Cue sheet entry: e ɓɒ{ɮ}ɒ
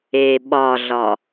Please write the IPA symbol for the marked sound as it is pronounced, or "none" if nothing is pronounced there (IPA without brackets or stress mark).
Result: ɮ